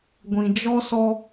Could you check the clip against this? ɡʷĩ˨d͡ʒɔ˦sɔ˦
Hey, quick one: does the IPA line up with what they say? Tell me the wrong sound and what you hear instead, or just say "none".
none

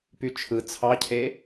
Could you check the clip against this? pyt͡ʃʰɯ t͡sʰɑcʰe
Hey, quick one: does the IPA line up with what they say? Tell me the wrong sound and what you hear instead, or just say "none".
none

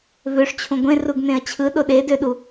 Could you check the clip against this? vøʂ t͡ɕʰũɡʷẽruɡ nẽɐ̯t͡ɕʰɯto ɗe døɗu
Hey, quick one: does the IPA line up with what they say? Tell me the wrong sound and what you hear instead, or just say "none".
t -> ɗ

